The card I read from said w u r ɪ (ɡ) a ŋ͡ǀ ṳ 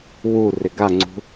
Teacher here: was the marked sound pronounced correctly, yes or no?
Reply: yes